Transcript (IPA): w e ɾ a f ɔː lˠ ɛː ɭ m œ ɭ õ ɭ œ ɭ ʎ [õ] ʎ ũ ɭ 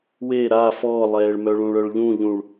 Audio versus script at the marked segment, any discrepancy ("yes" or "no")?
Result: yes